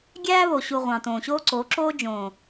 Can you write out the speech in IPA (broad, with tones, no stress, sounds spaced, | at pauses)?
ɡʲ æː˦ β o˨ ɕ u˨ ʁʷ ɑ̃˨ t õː˨ ɕ oː˦ ǀ o˨˦ ǁ oː˦ d͡ʒ õː˨